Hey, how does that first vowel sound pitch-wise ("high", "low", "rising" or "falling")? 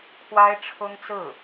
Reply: high